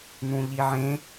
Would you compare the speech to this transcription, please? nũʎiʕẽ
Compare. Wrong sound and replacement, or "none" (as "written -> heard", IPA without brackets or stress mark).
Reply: none